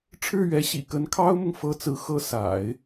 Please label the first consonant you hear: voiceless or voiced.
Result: voiceless